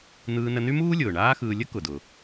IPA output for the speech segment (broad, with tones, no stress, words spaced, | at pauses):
n̪ɯː˧nə˧ny˥muː˥ lʲʊː˩ɳaː˥xɯː˧ lʲə˥kʊ˩dʊ˩